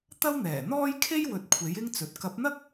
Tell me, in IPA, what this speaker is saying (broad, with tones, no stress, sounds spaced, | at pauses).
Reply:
t̪ ɐ˥ w n̪ ɛː˨˩ n̪ ɔː˥ j kʰ e˥ j w ɵ˨ t̚ kʷʰ e˨˥ j ɪ˥ ŋ t͡s ɵ˨ t̚ k ɐ˨˥ p̚ n̪ ɐ˥ k̚